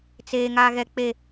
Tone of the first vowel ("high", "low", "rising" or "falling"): high